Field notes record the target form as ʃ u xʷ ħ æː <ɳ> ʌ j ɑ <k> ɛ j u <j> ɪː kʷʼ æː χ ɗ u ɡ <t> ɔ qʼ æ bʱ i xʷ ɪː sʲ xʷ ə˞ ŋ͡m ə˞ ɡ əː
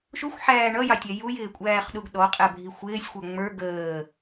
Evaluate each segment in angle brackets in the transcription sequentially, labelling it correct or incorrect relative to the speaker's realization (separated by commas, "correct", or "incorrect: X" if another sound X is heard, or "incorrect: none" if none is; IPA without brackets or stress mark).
correct, incorrect: tʲ, correct, incorrect: ɗ